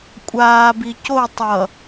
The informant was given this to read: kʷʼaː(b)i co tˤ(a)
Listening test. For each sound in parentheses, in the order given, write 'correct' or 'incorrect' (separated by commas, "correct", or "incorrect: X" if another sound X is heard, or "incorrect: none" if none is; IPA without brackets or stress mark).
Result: correct, incorrect: ʌ